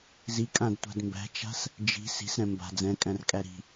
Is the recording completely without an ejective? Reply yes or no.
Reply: no